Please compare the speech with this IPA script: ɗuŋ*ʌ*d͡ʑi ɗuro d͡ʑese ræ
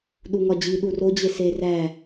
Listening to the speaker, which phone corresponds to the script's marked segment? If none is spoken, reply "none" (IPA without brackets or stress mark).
ɒ